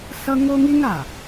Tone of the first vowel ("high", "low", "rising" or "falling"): high